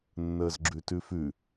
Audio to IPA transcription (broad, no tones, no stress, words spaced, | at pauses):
nːəːzɡ͡ǁʉtʉfʉ